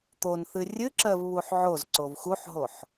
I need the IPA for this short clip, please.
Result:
t̪ o n θ ɨ rʲ ɨ ǁ ɜ v β u ħ ʕ o z ǀ o v x u ħ ɦ o ħ

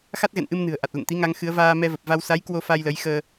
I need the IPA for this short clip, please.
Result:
x a˦˥ t̚ ɣ ɛ̰˧˨ n ʔ ɨ˧ m n ɨ̤˨˩ ə̯ ʔ a˨˩ t̚ l ə̰˧˨ n t̪ i˨˦ ŋ a˨˦ ŋ x ɨ˨˦ ə̯ v aː˧ m ɛ˧ v ə˨˩ p̚ v a˧ w s a˨˦ j k w o˧ f a˧ j l ə˨˦ j x əː˧

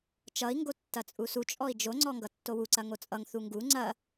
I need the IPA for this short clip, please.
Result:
t͡ʃ ʌ i̯ ŋ ɡ o tː ɐ t͡sʼ u s u t͡ʃʼ ɔ i̯ d͡ʒ o ŋ͡ǀ ɔ ŋ ɡ ʌ tː o w u ǀ ɐ ŋ o t͡sʼ ʌ ŋ θ u ŋ ɡ u ŋ͡ǀ ɐ

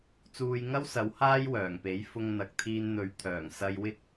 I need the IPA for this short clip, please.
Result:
t͡s uː˧ j ŋ ɐ˥ w s ɐ˨˥ w h aː˥ j w œː˨˩ ŋ p e˨˥ j f ʊ˧ ŋ n̪ ɐ˨ k̚ t̪ʰ iː˧ n n̪ ɵ˨˥ ɥ t̪ʰ œː˨˩ ŋ s ɐ˧ j w ɪ˥ k̚

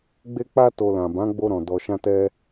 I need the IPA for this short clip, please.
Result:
ɡ͡b e˦ k͡p a˦ t o˧ l ã˨ b ã˨˦ ɡ͡b o˧ ɾ ɔ̃˨ d ɔ˧ ʃ ã˦ t ɛ˦

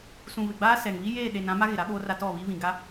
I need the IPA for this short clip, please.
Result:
s ũ˨ β ɪ˨ ɡ͡b aː˦ s ɛ˨ ŋ β i˦ j eː˦˨ ɗ e˨ n ã˦ m a˦ ɣ ɪ˨ ɾ a˦ ɓ oː˦ r a˦ t ɔ˦˨ β i˦ β ĩ˨ ɡ a˦

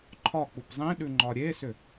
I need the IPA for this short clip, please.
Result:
ǃʰ ɒ k͡p u p zˤ ĩ ɗ ʉ ŋ͡ǃ ɒ ɾʲ e s ʏ

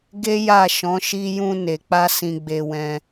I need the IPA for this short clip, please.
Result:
ɡ e˦ j a˦˨ ʃ ɔ̃˨˦ ʃ i˧ j ũ˧ n e˨ k͡p a˧ s ĩ˧ ɡ͡b e˧ w ɛ̃˧

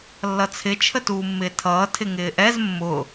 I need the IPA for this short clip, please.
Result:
lː ʌ t͡sʰ ɪ t͡ʃʰ ə t uː mː ɪː tʰ ʌː tʰ ɪ ŋ ɪː ʔ ɛ z mː ʊ

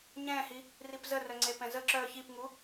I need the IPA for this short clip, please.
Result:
ɲ ɛ̃ h i | r i p z ə r œ ŋ͡ǀ e p ɛ̃ z ə ǁ œ ç i p ŋ u

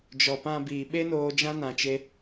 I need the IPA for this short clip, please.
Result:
d͡ʒ ɔ˨ p ã˧ b iː˨ ɓ e˦ n oː˧ d͡ʒ ã˦ n ã˧ t͡ʃ e˦

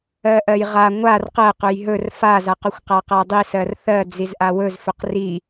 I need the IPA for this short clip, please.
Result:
ɜ ʔ ɜ j ʁ a ŋʷ a r q ɜ q ɵ j ɦ ɵ r f a z a q ɵ xʷ q a q a dˤ i s ɜ r θ ɜ d͡z i z ʔ a w ɵ z f ɵ q r i

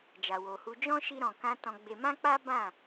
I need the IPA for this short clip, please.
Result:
d͡ʒ a˨ w o˨ h u˧ d͡ʒ ɔ̃˦ ʃ i˧ ɾ ɔ̃˨ k ã˧ t ɔ̃˧ ɡ͡b e˧ m ã˦ k͡p a˦ b ã˦˨

